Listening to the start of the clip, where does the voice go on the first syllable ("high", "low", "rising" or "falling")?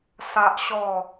high